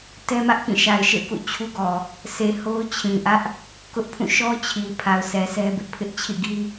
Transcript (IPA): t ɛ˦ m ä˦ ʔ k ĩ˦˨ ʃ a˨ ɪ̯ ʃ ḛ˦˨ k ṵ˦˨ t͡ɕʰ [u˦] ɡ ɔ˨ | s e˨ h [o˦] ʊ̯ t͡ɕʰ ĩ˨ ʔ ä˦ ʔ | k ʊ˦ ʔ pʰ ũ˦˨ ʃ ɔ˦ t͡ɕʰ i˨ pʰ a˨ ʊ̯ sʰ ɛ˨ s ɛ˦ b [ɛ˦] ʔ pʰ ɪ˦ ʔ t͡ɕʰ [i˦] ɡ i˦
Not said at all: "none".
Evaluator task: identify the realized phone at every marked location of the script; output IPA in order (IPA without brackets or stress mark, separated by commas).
u˦, o˦, ɪ˦, ḭ˦˨